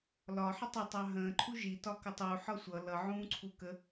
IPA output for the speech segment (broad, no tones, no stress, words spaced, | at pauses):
lɒħə tˤʊtˤɑ ɦə̃ːǃʰu ʒitɒkə tˤuħɒ sʷʌ lʌʕũːǀʰu kə